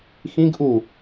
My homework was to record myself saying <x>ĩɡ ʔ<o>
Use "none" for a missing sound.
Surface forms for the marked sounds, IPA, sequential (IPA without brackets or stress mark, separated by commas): x, u